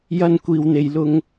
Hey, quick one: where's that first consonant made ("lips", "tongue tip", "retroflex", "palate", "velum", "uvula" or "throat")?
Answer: palate